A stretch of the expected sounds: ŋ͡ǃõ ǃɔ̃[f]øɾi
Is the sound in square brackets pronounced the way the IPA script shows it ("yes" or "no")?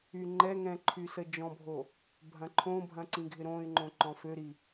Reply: yes